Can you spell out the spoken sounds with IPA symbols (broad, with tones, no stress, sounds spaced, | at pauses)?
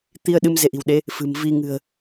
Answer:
t̪ i˧ ə̯ ɗ ɨ˧ m z e˧ ʔ i̤˨˩ w ɗ e˨˦ | f ɨ̤˨˩ m v i˧ ŋ ɨ̤˨˩ ə̯